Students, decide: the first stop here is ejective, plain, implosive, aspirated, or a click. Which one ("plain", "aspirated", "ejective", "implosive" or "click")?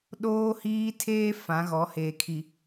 implosive